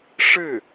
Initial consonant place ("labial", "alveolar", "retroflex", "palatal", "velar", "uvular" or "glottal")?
retroflex